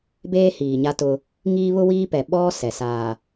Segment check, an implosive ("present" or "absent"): present